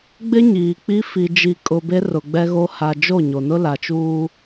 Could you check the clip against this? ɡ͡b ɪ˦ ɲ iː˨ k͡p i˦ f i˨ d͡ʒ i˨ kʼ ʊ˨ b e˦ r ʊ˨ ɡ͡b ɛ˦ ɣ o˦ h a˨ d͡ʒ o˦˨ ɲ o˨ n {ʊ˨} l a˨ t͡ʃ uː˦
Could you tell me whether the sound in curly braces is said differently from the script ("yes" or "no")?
yes